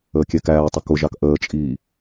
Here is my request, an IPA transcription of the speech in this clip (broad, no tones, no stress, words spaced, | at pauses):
əːkʲɛkæːtˤʊ kʊʒɑk ʔəːt͡ʃʼiː